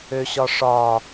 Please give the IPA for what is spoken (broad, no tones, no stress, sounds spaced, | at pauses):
ø ɕ ɒ ʂ ɒ